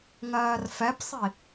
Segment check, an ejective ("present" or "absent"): absent